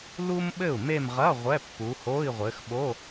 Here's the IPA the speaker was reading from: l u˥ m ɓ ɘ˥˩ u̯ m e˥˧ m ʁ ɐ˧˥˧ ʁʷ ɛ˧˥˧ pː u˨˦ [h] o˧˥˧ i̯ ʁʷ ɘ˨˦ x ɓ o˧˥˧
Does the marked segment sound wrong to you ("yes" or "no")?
no